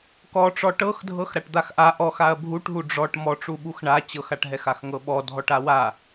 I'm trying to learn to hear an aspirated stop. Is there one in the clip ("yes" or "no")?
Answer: no